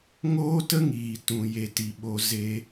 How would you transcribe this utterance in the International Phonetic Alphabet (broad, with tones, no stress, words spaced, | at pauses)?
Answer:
ŋoː˦tə˦ ŋiː˨tũ˨ je˧ti˨ɓo˧zeː˦